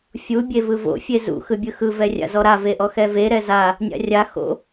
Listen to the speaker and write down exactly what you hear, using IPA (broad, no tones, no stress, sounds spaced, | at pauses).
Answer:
fʲ u bʲ e v ɯ v o̰ fʲ e z ṵ x ɯ bʲ ɯ x ɯ v ɛ rʲ a̰ z ɔ ɾ a v e ʔ ɔ x ɛ v e ɾ ɛ z a | nʲ a̰ rʲ a x o̰